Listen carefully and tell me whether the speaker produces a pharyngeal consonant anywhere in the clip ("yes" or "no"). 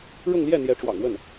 no